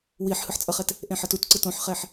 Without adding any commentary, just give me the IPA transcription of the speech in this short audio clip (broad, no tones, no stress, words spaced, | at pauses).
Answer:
wiħ hɯħt͡sʼʌχɛt | ʔẽħʌtut ǀɯtõħχɛħ